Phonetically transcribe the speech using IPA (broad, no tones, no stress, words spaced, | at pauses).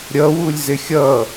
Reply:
ɾʲʌwulʲ zɪxʲʌ